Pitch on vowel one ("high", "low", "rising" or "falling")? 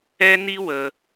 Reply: high